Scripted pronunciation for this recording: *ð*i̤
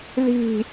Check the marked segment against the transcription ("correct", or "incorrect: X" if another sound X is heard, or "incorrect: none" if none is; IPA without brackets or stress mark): correct